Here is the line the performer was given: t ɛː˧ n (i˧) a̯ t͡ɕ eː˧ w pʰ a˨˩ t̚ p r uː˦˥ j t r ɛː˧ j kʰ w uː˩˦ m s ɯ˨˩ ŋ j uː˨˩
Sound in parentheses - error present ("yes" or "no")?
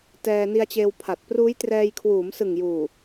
no